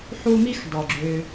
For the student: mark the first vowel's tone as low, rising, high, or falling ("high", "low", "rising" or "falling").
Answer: high